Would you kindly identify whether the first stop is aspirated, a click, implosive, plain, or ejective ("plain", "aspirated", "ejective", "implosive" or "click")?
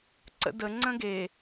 click